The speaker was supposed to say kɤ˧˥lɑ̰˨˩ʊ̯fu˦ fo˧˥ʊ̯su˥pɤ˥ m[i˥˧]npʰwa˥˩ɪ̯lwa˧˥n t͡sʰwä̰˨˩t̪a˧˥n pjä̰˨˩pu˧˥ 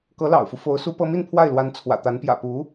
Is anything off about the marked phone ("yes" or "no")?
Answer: no